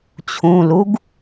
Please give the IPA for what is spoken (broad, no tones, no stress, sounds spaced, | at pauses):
t͡ɕʰ ũ l u ɡ